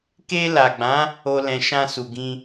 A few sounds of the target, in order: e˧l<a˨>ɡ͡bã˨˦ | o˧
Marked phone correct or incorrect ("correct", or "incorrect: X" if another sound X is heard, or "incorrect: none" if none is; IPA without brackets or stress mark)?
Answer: correct